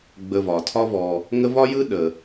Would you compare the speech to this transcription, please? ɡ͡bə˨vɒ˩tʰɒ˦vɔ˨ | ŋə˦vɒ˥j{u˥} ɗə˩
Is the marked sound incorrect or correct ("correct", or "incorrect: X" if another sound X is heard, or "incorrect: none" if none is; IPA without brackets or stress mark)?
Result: incorrect: ɯ˥